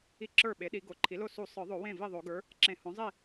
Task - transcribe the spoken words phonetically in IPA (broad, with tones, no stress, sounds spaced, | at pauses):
i˥˩ ǁ ə˞˥˩ ɓ e˩˥ ɗ i˨˩˦ ɡ o˩˥ ǃʰ i˩˥ l o˥˩ s u˨˩˦ sˤ ə˞˨˩˦ ðˤ o˨˩˦ w ẽ˥˩ v i˥˩ ðˤ o˨˩˦ ɡ ə˞˩˥ | ǁ ẽ˨˩˦ h õ˩˥ zˤ i˥˩